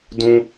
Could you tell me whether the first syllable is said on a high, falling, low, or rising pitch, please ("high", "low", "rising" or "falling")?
high